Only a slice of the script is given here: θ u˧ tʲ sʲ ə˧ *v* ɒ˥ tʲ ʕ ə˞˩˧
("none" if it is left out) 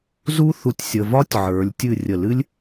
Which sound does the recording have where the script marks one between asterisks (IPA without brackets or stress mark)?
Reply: v